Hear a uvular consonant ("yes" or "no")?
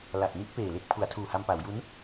no